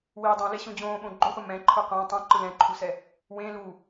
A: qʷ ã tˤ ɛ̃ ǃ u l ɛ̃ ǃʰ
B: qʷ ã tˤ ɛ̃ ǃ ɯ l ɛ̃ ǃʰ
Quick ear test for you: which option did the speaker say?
B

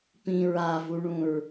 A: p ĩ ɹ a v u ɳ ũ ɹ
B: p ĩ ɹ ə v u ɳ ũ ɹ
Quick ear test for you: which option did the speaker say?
A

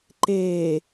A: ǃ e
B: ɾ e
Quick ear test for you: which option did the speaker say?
A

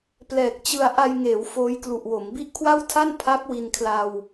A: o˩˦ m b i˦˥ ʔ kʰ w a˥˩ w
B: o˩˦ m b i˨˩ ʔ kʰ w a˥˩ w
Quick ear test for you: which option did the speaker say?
A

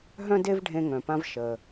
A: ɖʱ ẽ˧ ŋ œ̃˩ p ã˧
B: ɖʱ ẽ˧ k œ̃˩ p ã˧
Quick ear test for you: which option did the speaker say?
A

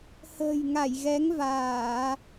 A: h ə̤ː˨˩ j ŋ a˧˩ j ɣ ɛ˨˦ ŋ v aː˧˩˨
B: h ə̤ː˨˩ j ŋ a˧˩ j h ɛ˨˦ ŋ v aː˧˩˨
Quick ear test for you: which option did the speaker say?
A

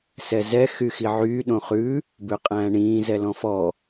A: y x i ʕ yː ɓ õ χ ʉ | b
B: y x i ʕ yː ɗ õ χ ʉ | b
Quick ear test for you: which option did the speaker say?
B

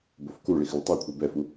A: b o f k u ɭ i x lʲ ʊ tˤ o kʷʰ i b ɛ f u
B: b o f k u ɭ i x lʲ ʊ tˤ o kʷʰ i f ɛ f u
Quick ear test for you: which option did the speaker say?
A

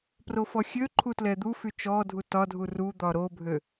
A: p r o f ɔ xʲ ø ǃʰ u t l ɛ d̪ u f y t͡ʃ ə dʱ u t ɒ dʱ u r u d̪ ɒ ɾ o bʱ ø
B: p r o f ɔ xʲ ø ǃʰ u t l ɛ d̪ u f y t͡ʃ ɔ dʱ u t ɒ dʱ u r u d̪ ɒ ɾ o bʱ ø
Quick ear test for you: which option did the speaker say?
B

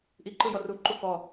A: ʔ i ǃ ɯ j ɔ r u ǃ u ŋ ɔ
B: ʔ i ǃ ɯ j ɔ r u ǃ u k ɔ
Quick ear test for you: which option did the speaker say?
B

